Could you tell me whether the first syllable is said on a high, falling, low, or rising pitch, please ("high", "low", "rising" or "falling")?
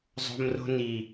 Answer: high